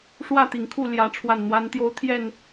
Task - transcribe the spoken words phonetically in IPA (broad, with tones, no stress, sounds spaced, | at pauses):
ʂ w ä˥˨ t̪ i˨˩ ŋ kʰ u˥˨ l j ä˨˦ ʈ͡ʂʰ w a˨˩ n n̪ w a˨˦ n t̪ j o˨˦ ʊ̯ t̪ʰ j ɛ˥˨ n